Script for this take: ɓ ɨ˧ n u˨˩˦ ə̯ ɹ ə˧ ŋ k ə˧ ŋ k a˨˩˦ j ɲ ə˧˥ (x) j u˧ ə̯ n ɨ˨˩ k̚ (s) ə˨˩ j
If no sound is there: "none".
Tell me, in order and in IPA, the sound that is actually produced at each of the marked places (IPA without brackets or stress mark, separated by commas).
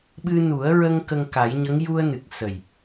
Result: ŋ, s